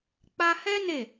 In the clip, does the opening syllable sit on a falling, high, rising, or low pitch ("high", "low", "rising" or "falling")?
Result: high